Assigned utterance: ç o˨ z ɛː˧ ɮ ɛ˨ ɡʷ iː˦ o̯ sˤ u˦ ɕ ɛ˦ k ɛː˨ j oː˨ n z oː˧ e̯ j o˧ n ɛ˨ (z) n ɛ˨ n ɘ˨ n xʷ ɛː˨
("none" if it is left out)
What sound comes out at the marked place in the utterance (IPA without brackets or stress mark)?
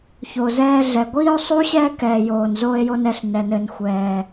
ɬ